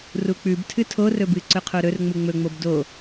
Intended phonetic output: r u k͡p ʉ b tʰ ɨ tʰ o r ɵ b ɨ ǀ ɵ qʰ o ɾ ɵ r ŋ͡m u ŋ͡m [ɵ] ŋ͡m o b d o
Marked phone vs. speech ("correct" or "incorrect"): correct